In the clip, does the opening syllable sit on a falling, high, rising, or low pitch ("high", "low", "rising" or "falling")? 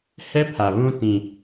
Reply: high